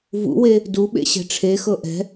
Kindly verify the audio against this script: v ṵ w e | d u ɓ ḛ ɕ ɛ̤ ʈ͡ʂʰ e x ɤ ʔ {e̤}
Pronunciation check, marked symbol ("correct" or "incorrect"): incorrect